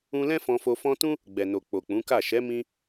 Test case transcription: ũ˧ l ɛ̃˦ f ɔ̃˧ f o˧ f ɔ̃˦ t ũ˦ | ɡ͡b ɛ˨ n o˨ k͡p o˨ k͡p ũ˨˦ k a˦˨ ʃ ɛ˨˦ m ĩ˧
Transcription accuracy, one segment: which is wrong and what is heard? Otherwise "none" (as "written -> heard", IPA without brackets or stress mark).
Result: none